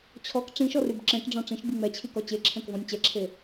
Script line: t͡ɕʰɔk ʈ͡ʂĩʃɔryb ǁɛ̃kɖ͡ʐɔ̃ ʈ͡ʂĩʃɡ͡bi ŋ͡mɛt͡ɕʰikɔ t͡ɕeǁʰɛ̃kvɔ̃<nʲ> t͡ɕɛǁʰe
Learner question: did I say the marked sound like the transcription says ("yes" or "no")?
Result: yes